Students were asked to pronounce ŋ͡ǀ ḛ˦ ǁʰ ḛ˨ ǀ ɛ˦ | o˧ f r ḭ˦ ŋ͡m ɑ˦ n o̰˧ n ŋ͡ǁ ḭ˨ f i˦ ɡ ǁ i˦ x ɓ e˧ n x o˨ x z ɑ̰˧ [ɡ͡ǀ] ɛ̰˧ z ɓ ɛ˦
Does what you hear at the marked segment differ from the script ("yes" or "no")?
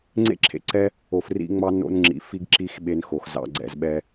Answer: no